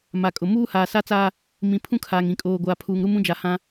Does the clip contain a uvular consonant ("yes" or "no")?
no